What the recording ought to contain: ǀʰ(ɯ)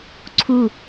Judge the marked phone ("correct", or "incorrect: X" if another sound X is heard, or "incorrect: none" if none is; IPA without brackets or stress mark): incorrect: u